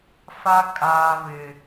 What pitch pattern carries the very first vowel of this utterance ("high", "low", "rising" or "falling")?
high